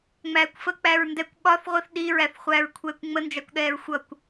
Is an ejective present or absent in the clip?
absent